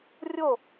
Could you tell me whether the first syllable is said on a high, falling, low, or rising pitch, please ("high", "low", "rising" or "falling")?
falling